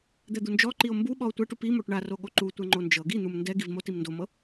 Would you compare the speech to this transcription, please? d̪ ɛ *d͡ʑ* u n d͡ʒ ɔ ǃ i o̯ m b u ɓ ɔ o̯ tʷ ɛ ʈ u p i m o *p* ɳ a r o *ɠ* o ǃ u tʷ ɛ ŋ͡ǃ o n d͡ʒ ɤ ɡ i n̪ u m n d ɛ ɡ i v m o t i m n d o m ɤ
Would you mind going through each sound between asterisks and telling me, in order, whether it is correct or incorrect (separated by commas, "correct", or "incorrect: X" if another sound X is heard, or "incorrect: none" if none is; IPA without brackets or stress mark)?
incorrect: d̪, incorrect: ʈ, correct